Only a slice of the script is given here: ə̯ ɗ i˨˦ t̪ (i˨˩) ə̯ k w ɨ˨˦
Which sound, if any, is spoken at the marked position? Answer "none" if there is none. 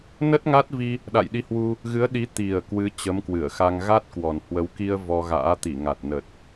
i˨˩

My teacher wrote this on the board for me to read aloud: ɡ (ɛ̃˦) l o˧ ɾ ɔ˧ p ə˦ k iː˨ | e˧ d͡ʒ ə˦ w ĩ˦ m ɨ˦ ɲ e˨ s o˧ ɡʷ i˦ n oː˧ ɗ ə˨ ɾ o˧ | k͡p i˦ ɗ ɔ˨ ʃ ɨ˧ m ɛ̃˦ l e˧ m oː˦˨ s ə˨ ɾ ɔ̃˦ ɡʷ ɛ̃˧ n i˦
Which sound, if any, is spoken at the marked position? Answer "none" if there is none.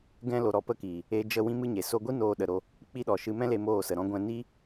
ɛ̃˦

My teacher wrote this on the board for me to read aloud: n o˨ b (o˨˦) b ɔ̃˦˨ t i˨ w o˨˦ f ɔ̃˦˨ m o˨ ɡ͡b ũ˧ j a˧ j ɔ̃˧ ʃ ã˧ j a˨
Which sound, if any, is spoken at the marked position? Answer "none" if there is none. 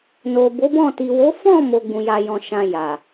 o˨˦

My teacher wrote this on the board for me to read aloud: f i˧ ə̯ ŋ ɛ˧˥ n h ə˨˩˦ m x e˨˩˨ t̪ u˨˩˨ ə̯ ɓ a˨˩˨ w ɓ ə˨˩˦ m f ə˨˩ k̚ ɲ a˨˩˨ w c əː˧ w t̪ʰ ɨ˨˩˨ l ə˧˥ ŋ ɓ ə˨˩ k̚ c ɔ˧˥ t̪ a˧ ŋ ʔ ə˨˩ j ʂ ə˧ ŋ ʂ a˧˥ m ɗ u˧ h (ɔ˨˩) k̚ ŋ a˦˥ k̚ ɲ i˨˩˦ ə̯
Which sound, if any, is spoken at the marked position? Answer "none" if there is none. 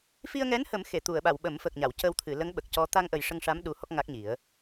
ɔ˦˥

